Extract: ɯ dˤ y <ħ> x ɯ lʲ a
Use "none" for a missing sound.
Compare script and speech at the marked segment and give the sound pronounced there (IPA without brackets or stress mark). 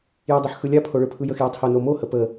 ħ